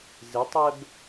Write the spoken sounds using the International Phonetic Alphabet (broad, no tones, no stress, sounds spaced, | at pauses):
z ɪ tˤ ɛ b